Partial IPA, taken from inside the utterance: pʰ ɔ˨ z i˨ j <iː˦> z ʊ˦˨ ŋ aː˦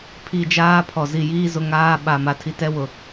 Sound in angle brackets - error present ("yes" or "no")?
no